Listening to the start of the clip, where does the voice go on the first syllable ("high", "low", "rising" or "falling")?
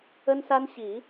high